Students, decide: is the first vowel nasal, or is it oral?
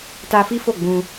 oral